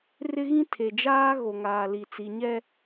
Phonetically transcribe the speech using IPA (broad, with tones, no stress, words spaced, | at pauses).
rɪ˦ɣĩ˦ tʰe˨d͡ʒaː˦ ɣo˨ŋaː˨li˨ t͡si˨ɲɛ˦